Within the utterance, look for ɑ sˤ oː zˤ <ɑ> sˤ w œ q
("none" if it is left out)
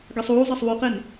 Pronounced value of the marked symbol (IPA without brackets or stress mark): ɑ